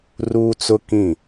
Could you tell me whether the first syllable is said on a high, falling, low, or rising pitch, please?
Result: high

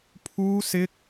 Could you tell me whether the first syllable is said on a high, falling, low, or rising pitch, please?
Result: high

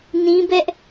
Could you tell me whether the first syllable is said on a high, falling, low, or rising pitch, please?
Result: high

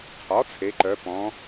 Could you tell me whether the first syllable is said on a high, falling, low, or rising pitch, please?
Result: rising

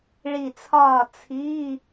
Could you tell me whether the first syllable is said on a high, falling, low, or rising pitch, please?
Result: low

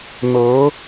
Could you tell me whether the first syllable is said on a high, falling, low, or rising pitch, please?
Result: rising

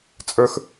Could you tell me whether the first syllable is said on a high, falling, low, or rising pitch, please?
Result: high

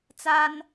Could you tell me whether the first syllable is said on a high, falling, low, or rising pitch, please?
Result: high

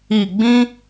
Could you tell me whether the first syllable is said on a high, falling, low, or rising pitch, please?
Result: low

